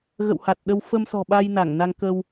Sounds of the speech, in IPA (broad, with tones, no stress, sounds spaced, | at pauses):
ɣ ə̰˧˨ w h a˨˩ t̚ ɗ ə˧ w f ə˧ m s ɔ̤˨˩ ɓ a˧ j n a˧˩ ŋ n a˧ ŋ k ə˧ w